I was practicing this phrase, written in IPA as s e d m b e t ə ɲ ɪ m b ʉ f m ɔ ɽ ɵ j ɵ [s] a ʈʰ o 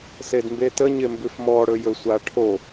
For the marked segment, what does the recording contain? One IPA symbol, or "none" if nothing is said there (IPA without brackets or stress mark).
sʷ